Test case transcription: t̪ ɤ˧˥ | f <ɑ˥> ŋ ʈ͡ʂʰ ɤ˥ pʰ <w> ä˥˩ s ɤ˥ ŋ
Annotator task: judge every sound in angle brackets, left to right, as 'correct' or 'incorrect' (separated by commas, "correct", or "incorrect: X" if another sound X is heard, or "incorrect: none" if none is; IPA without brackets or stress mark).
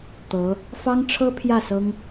correct, incorrect: j